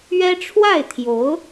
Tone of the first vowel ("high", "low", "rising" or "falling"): high